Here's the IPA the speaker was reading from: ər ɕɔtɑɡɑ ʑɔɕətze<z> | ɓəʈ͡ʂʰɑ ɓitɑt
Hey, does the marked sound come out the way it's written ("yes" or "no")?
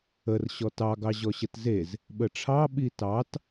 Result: yes